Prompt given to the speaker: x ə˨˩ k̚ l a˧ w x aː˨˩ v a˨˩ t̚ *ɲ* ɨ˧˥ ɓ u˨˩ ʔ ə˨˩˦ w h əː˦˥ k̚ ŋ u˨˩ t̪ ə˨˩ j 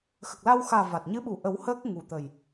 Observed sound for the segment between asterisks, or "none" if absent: ɲ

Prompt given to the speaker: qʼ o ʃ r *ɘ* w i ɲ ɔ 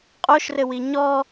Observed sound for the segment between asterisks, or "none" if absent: ɘ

